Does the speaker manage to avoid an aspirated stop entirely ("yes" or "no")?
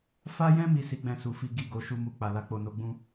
yes